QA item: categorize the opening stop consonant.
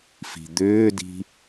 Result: plain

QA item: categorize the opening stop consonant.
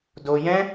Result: plain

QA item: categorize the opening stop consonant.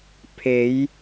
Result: aspirated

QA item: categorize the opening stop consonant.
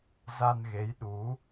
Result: implosive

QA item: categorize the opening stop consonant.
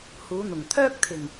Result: aspirated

